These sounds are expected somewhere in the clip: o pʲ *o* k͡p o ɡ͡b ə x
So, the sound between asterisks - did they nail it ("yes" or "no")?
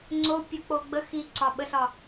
yes